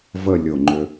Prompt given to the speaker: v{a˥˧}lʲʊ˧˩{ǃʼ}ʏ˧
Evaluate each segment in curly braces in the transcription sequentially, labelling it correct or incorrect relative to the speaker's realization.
incorrect: ə˥˧, incorrect: ŋ͡ǃ

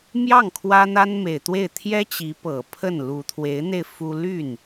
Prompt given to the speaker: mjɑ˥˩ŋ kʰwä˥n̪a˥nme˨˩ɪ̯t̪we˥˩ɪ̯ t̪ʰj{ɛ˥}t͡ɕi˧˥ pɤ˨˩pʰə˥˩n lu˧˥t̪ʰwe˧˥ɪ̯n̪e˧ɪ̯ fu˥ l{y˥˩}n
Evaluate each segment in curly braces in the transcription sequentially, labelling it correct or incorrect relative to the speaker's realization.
correct, correct

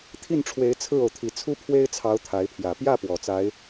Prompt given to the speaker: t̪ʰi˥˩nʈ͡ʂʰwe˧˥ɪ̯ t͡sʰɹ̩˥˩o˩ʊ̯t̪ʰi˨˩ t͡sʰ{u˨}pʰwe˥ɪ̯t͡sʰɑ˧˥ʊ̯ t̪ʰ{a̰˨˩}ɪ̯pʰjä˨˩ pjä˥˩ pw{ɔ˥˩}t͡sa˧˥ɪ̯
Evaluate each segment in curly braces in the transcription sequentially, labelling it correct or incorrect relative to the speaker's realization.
incorrect: u˥, incorrect: a˧˥, incorrect: ɔ˨˩

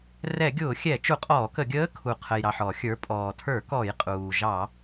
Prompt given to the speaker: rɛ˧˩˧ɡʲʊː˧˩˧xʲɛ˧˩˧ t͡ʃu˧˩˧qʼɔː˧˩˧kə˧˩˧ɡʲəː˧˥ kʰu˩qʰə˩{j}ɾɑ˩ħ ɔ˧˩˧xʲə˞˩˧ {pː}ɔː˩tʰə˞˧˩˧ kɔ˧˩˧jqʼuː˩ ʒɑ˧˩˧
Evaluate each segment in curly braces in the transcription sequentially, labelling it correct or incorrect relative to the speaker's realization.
correct, incorrect: pʼ

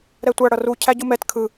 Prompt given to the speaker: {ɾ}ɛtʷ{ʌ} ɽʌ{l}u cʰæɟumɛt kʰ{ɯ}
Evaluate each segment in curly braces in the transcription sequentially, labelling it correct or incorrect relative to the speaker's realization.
correct, incorrect: a, incorrect: r, correct

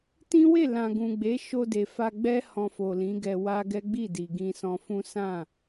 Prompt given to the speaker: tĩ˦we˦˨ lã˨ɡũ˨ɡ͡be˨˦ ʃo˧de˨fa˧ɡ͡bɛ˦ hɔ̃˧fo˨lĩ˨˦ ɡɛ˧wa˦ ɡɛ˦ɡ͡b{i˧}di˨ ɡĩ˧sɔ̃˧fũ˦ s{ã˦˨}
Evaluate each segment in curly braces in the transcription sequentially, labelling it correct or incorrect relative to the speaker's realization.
incorrect: i˦˨, correct

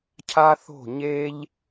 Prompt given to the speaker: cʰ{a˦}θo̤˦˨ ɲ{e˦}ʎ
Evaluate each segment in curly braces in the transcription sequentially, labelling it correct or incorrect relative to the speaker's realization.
correct, correct

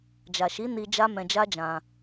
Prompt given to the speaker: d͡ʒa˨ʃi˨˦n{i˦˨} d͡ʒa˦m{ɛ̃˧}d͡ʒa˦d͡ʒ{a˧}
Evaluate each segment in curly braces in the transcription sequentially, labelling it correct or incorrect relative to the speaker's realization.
incorrect: i˧, correct, incorrect: ã˧

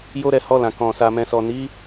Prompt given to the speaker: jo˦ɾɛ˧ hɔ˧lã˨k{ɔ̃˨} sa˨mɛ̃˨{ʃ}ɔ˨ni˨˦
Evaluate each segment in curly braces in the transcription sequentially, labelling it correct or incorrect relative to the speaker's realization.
correct, incorrect: s

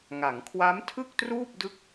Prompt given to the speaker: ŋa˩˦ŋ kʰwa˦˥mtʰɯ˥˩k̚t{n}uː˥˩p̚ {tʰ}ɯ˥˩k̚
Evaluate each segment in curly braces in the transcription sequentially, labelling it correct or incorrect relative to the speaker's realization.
incorrect: r, incorrect: d

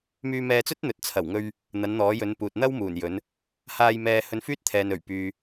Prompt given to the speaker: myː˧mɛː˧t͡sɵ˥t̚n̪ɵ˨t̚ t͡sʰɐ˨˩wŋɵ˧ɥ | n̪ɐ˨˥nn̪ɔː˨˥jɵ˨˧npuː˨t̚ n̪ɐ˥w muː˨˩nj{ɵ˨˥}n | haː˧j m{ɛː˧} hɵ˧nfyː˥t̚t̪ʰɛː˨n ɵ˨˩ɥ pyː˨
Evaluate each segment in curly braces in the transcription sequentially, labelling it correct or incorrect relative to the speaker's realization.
correct, correct

